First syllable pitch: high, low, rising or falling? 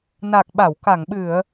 low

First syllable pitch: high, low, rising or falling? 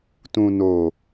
low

